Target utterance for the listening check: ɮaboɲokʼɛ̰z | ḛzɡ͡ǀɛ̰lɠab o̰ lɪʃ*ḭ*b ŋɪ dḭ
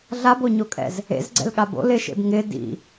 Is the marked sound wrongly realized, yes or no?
yes